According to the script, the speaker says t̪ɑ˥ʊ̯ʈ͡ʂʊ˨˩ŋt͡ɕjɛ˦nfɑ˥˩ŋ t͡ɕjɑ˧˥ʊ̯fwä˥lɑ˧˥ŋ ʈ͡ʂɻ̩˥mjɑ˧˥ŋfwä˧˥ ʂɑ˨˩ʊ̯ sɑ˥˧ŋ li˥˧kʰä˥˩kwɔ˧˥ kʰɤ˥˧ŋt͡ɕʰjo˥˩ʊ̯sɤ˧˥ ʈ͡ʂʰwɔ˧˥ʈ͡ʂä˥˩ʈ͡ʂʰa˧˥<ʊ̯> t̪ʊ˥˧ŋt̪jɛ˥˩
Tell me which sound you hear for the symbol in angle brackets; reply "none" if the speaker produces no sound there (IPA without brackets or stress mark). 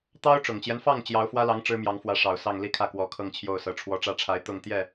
ɪ̯